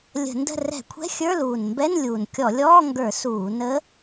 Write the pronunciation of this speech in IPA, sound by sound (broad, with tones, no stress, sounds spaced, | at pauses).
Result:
lʲ ə̤˧˩˧ n d ə̤˥˨ r ɛ̤˧˩˧ kʷʰ ɛ̤˧˥˧ xʲ ə˞˧˥˧ l uː˨˩ n m b ɛ˧˥˧ n lʲ uː˨˩ n kʲ ɔ˧˩˧ lʲ ɔː˧˥˧ ŋ ɡ ə˞˧˩˧ s uː˧˩˧ n ə˧˥